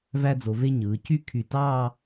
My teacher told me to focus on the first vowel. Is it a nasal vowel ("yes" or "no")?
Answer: no